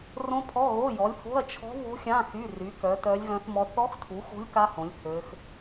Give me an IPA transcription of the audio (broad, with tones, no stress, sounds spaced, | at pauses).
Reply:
r õ˦˥ pʰ ɔ˧˥˧ ɣ o˧˥˧ j ɔ˨˥ lʲ h o̤˧˥˧ ɐ̯ t͡ʃʰ ɔ̤˦˥ β o̤˦˥ xʲ ã˧˥˧ x y˧˥˧ r y˨˥ k œ˨˥ t œ˦˥ lʲ ɣ œ̃˦˥ θ m ɔ˦˥ θ ɔ˦˥ x tʰ u˨˥ x o̤˦˥ lʲ k a˦˥ h õ˨˥ lʲ h ø˦˥ x